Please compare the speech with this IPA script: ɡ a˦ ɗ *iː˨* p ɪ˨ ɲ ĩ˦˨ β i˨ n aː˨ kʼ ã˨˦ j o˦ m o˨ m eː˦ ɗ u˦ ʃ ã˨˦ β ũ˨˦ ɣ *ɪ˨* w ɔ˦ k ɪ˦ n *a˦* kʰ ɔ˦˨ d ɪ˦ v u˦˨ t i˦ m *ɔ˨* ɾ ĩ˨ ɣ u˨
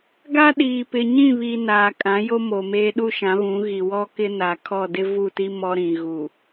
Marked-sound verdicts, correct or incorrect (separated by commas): correct, incorrect, incorrect, incorrect